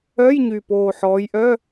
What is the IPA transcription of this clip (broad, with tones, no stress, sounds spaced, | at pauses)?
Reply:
œ˧˥˧ j ɲ y˨˩ p oː˨˩ ħ ɔː˨˦ j ʔ œ˧˥˧